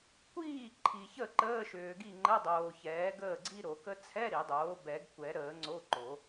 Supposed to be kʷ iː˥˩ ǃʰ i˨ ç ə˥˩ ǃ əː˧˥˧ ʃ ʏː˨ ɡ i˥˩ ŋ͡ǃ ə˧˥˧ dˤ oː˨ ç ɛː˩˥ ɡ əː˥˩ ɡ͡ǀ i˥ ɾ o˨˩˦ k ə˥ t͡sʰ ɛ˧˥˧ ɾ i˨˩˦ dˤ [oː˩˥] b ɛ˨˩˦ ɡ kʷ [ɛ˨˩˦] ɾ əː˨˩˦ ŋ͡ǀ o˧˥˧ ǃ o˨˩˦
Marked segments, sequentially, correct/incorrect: correct, correct

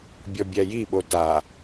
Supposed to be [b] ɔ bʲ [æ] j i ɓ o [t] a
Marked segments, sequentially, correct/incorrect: incorrect, correct, correct

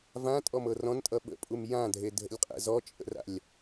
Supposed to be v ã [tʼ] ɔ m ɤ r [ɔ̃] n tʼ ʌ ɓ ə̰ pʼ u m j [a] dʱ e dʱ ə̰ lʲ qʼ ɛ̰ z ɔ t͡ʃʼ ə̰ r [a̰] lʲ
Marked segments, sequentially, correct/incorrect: correct, correct, incorrect, correct

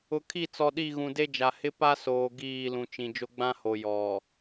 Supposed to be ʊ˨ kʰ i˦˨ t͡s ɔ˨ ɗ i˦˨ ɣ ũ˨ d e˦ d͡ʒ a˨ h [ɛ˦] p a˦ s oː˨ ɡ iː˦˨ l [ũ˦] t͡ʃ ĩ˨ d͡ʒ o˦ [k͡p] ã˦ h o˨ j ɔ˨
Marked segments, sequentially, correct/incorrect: incorrect, incorrect, incorrect

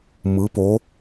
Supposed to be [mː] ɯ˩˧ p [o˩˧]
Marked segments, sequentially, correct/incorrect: incorrect, correct

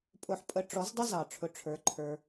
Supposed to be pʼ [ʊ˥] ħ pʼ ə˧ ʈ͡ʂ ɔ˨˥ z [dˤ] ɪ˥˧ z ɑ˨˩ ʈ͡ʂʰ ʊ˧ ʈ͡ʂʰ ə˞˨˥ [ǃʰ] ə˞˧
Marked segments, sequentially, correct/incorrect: incorrect, correct, correct

